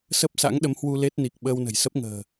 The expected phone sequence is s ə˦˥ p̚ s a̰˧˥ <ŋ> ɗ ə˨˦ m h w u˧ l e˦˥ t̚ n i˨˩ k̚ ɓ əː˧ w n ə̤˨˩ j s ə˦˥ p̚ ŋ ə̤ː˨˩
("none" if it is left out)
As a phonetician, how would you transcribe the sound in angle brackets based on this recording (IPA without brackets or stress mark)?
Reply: ŋ